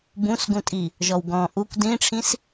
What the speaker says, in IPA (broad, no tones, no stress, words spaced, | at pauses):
bũsɡũtʼi | ʒɔwɡɔ̃ ʔukʷ dĩʈ͡ʂʰĩs